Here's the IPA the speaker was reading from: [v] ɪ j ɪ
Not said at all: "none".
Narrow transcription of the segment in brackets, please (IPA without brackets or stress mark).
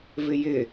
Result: v